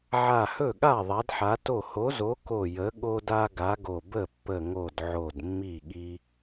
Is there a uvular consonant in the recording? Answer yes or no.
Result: no